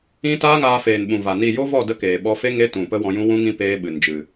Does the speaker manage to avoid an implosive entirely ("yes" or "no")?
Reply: no